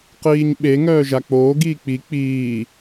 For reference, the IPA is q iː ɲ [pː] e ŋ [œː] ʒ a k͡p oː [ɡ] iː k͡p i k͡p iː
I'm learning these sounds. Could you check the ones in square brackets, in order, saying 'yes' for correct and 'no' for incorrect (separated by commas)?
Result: no, yes, yes